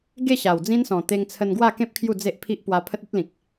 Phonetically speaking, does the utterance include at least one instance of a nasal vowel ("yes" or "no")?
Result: yes